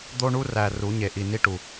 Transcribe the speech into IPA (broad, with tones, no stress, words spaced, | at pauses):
d̪o˦ɳu˦ræ˨ ru˨˦ɲe˨ʔi˨ ni˦ʈu˨